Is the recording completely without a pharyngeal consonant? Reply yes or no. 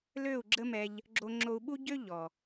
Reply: yes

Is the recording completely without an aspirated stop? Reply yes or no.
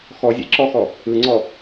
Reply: yes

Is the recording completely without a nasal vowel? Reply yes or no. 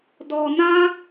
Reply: no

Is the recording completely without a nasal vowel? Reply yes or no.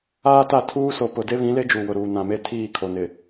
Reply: no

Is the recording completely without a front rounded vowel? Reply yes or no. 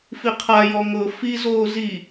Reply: yes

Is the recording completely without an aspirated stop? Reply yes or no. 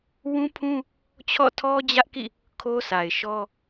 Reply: no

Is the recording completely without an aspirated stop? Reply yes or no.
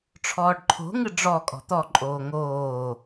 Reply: no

